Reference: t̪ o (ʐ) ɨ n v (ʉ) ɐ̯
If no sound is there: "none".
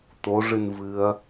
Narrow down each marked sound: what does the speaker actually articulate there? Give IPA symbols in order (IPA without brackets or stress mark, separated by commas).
ʐ, ɨ